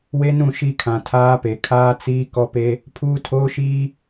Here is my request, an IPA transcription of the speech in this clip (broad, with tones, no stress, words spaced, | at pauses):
we˦nũ˦˨ ʃi˦kʰã˨ tʰaː˦pe˨ kʰaː˦t͡siː˦ kɔ˦pe˦ | pʰuː˦tʰoː˦ʃiː˦